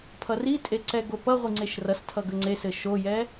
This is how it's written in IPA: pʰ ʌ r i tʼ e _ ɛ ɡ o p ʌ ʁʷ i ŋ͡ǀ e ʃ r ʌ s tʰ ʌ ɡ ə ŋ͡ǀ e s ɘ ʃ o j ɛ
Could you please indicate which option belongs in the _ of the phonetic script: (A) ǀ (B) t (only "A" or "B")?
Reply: A